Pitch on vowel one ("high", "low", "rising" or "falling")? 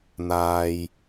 low